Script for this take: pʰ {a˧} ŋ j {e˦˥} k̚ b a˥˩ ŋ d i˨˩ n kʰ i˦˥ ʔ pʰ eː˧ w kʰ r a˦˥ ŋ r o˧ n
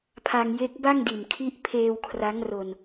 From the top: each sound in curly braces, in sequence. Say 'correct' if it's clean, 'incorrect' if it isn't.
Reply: correct, correct

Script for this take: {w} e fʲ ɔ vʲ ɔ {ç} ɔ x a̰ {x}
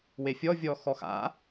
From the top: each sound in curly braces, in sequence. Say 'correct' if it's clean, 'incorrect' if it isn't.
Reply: correct, incorrect, incorrect

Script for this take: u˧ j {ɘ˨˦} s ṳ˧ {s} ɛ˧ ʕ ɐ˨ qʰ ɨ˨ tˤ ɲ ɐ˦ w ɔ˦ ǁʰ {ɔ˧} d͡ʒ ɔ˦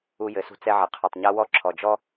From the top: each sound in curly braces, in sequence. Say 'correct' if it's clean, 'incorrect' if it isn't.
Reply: correct, incorrect, incorrect

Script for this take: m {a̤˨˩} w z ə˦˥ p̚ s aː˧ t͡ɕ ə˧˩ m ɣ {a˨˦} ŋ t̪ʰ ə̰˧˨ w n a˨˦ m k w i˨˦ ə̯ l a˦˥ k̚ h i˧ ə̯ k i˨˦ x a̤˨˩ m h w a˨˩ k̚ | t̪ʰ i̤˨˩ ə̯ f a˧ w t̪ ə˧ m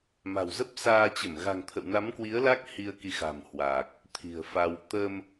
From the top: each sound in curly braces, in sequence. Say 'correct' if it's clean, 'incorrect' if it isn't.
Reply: correct, incorrect

